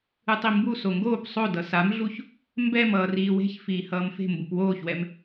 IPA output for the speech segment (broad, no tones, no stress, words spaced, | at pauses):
ɯtˤimbu soŋɡoːp sˤodʌ samɮuç | mbɛm ʌːriːwe̤ç fiːhʌːmfe̤ mbupwoːçwɛm